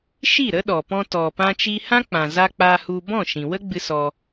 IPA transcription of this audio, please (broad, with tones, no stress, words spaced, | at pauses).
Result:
ʃi˦˨ ɾə˦ɗɔ˨ pɔ̃˧tɔ˨ pã˦t͡ʃi˦ hã˦k͡pã˨za˧ k͡pa˧hu˧ bɔ̃˦˨ʃĩ˨wə˦ɡ͡bɨ˧ sɔ˧